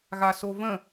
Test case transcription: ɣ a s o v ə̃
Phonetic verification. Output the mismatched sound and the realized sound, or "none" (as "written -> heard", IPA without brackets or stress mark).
none